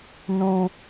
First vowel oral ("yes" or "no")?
no